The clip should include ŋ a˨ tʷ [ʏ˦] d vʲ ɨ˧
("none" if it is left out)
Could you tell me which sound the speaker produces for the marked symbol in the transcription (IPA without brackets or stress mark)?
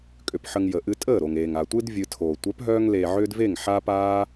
ɨ˦